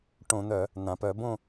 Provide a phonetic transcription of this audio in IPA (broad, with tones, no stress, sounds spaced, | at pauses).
ʈ õ˧˩˧ n̪ œ˧˩˧ | n̪ ã˩ p œ˧˩˧ b õ˥˨